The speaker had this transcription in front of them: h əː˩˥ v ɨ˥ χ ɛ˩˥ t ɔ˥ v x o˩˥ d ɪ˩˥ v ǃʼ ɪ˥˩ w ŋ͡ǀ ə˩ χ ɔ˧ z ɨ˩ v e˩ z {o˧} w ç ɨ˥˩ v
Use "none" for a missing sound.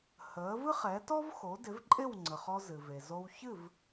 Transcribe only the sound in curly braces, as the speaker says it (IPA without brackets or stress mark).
o˧